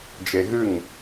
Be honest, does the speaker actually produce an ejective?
no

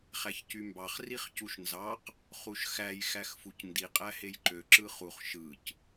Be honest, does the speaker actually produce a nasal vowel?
no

